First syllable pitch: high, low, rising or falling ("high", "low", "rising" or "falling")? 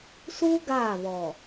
high